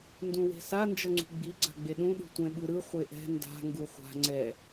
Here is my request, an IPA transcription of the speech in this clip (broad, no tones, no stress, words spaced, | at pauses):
ndũwe̤sa nd͡ʒʌŋ͡ǀṳɡ͡bi ɡ͡ǀa̤ɡ͡beɗũ ɗṳtʷɛ̃ɓɯɾɯ χʷeʔɛ̤ nda̤ ŋɡuχʷa̤ ŋ͡ǀɛ